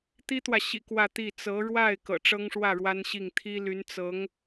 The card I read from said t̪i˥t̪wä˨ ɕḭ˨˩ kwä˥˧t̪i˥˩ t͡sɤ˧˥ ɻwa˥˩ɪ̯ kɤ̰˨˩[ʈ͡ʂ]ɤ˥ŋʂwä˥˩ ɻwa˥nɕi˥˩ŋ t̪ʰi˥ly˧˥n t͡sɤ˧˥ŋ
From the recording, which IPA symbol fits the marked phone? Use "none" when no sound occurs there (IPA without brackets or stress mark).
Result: ʈ͡ʂ